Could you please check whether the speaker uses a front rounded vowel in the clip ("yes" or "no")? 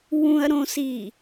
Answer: no